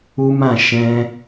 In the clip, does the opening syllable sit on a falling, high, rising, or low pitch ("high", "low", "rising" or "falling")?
high